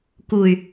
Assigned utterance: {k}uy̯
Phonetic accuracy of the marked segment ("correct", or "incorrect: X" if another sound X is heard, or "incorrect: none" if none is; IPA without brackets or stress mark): correct